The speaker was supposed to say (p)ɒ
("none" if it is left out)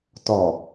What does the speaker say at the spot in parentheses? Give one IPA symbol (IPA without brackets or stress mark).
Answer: t